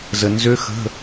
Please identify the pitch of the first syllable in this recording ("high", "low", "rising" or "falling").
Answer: low